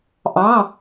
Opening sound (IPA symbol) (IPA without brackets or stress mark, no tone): ʔ